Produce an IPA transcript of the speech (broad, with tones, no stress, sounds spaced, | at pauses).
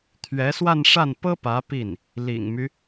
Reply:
t̪ʰ ɥ ɛ˧˥ s w a˥˧ n ʂ a˥˩ n p ɤ˥ p ä˧˥ p i˥˩ n | l ḭ˨˩ ŋ m y˦